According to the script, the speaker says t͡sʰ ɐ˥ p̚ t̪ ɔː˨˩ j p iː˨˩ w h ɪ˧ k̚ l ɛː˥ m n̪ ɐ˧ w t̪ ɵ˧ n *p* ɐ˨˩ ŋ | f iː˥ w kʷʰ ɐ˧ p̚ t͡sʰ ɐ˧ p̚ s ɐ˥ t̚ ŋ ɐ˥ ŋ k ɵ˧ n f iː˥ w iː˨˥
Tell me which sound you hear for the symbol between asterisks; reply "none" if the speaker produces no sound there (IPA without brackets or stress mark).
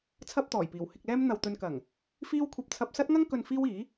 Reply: k